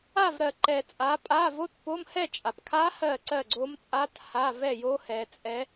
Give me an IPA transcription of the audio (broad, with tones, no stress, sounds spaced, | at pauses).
a˥˨ v ɾ ɜ˨ ǃ ɛ˨ t͡sʼ a˨˦ pʼ a˧˥˧ v o˦˥ t p o˧˥˧ m h ɛ˥˨ t͡ʃʼ a˨ p kʰ a˦˥ h ɜ˥˨ ǀ ɜ˥˨ ɡ͡ǀ o˦˥ m t͡sʼ a˦˥ t h a˧˥˧ v ɛ˥˨ j o˦˥ h ɛ˨˦ t͡sʼ ɛ˦˥